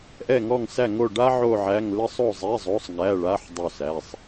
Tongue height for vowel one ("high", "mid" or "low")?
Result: mid